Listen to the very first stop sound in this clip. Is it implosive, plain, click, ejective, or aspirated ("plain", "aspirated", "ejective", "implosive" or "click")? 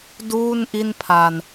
plain